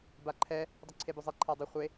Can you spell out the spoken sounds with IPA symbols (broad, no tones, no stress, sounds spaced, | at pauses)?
b a ǃʰ ɛ | dˤ ʏ ǀʰ e b ʏ zˤ i ǃʰ a dˤ ʏ χʷ e